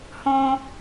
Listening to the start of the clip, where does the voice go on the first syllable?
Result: high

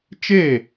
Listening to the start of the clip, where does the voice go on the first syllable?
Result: falling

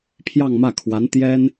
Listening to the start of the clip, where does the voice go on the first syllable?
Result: falling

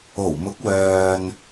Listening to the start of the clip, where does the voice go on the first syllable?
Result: low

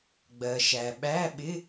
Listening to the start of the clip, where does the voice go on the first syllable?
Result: low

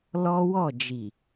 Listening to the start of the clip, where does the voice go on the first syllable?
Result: high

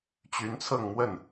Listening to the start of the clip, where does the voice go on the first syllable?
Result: rising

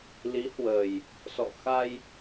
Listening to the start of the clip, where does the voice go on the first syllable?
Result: rising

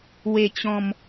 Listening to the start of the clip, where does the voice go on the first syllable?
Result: low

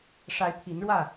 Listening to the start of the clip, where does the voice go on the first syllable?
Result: rising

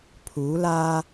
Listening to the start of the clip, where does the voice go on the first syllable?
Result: rising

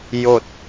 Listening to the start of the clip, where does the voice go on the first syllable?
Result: falling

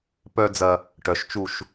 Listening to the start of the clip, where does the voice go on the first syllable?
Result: high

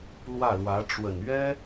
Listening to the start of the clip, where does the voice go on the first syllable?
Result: falling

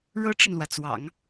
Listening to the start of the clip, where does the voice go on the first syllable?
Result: high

